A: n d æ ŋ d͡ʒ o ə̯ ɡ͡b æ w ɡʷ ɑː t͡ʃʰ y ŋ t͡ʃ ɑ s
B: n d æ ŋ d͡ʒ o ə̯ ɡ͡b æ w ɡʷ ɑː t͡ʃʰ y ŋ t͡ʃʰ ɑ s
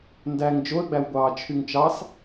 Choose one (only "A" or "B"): A